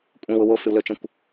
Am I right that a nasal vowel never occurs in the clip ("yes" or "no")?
no